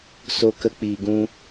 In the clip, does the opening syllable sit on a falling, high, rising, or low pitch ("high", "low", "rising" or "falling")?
high